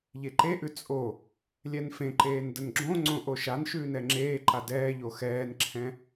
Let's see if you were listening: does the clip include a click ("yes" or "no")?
yes